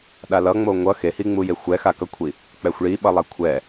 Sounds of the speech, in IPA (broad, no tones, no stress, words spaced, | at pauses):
ɗalʌŋ͡mo ŋʷʌ xehiŋ͡muje xʷɛxakʌkʷʰi | k͡pɛxʷɭiɓʌlˠa kʷʰɛ